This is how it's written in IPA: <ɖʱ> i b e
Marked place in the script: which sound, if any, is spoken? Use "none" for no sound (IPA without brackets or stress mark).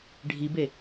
ɖʱ